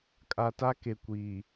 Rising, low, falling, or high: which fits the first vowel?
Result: low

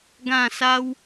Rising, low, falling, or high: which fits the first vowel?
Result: falling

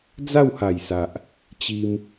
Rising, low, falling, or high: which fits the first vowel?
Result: falling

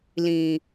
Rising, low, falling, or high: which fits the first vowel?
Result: low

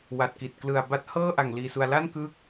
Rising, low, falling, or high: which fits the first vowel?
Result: low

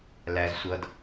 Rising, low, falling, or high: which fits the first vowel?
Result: high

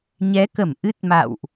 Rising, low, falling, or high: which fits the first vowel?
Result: rising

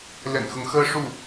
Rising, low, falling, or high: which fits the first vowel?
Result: low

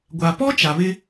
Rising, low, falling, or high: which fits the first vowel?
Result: low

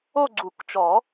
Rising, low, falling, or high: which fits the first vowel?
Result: falling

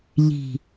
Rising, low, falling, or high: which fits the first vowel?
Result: low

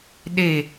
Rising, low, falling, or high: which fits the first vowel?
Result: falling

